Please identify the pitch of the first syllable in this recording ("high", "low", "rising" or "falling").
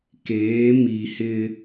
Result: rising